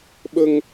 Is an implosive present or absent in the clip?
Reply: present